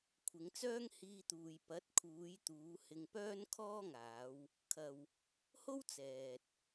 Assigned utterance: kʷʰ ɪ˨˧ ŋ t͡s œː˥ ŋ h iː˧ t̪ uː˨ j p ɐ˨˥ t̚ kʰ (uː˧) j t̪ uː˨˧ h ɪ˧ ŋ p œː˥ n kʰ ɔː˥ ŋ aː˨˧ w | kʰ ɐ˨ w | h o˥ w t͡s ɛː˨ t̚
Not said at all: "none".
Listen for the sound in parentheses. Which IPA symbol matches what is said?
uː˨˧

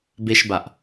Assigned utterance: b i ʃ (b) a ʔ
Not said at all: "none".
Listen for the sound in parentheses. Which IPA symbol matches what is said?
b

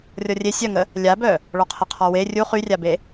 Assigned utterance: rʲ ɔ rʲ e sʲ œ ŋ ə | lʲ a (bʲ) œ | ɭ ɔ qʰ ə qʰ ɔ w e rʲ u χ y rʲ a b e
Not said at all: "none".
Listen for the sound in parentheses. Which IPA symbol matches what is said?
b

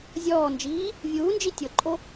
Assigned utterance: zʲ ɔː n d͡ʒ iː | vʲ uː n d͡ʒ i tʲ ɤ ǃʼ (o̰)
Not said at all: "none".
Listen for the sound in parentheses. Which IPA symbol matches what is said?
o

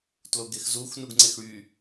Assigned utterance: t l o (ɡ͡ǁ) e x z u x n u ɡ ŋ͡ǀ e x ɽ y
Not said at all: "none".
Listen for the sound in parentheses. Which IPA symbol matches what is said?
ɡ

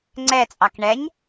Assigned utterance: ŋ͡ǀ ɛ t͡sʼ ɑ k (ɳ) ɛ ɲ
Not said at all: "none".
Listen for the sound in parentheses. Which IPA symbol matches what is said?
ɳ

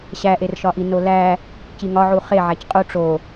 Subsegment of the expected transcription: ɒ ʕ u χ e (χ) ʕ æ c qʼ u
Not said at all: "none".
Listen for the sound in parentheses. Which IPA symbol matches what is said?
none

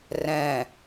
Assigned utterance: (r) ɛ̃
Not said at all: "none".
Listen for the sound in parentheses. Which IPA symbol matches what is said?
r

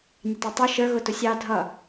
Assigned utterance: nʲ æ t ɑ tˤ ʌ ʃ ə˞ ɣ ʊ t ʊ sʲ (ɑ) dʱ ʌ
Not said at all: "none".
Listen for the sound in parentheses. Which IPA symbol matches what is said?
ɑ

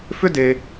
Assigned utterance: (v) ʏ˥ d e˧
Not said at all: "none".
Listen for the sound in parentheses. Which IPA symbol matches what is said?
f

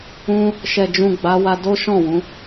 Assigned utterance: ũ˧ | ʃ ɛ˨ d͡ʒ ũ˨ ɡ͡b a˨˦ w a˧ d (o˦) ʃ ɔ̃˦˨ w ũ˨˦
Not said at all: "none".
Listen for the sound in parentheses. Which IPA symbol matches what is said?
o˦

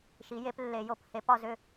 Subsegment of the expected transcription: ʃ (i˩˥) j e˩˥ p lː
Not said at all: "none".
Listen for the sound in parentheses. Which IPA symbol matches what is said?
i˩˥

